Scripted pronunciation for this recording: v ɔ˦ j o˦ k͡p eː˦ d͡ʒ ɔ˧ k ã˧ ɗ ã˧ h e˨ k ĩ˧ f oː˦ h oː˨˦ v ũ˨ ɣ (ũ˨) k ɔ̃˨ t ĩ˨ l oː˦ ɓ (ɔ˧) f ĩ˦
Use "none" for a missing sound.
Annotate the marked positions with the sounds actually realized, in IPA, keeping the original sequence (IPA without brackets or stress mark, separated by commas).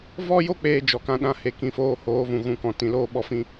ũ˨, ɔ˧